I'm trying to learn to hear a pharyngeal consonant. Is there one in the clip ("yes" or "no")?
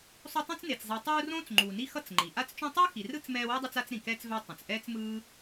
no